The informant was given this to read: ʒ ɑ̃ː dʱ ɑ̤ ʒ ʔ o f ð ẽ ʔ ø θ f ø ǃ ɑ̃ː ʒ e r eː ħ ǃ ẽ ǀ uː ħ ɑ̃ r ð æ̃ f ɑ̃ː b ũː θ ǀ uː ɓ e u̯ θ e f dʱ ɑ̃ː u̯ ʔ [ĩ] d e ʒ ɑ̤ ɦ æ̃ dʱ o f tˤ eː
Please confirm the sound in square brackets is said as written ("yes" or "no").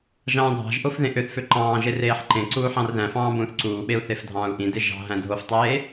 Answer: yes